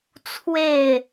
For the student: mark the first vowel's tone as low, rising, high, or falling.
falling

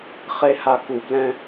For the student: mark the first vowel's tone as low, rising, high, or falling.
high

